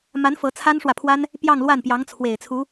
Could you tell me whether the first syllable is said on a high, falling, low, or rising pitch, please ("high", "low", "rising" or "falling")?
rising